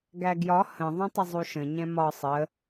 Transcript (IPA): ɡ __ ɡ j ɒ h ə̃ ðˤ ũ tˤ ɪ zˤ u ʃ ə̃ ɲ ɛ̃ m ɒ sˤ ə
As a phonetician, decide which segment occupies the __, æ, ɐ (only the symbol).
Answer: æ